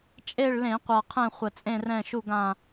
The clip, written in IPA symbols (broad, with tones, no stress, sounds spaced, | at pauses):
t͡ʃʼ e˦˨ ɭ l ẽ˧˩˧ qʷ a˨˩ qʰ ɛ̃˦˨ χʷ ə˨˩ t͡sʼ ẽ˦˨ r ɛ̃˦˨ ʃ u˦˨ ɡ ã˦˨